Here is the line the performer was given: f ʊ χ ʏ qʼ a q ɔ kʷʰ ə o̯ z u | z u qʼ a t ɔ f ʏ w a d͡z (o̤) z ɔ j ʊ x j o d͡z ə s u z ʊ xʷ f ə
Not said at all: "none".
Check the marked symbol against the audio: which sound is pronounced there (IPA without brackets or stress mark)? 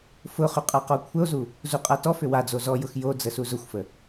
o